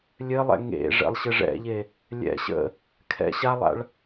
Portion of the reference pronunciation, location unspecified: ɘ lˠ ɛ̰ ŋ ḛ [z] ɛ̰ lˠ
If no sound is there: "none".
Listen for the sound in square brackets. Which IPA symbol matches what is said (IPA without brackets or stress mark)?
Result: ʐ